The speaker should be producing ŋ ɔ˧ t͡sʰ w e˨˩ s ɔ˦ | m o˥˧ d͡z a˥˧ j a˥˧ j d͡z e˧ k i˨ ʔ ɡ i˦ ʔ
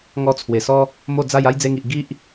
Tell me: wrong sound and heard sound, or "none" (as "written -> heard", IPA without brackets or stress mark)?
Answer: k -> ŋ